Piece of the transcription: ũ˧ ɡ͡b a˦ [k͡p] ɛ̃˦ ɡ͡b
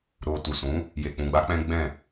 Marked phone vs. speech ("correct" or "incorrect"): correct